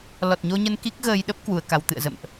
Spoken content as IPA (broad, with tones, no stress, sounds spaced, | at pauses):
l ɔ˨˩ t̚ ɲ o˧ ɲ ə˧ n k i˦˥ k̚ ɣ əː˧ j ɗ ə˦˥ p̚ k w u˧ ə̯ k a˧ w t̪ ɨ̰˧˨ ə̯ z ə̰˧˨ m ʔ